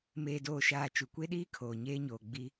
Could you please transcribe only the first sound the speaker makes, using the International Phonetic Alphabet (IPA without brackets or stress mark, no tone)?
m